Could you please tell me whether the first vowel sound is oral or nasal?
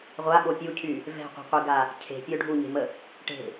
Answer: oral